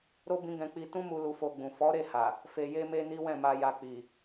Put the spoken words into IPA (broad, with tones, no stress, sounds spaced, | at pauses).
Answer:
ɾ o˦ b ĩ˦ ɡ ɛ̃˧ k͡p i˧ t ũ˦ m u˧ l u˧ f o˧ ɡ͡b ũ˨ f ɔ˨˦ ɾ e˦˨ h a˨ | f e˨ j e˧ m e˧ n i˦ w ɛ̃˦˨ m a˧ j a˧ k͡p i˨